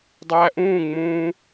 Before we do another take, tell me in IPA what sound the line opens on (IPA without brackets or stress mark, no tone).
dˤ